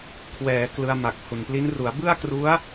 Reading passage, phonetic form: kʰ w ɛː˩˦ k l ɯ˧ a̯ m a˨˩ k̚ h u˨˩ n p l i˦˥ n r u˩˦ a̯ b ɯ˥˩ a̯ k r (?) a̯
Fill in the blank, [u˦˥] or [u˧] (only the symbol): u˦˥